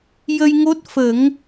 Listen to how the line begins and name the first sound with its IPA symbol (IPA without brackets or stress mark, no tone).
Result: j